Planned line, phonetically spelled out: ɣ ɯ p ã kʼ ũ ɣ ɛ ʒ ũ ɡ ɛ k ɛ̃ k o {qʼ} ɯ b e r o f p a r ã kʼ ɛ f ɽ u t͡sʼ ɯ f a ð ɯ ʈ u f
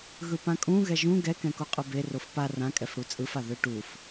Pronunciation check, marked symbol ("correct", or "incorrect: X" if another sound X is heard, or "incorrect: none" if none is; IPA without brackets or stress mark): correct